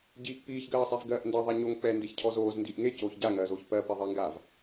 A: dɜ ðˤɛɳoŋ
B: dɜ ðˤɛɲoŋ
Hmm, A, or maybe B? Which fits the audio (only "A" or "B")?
B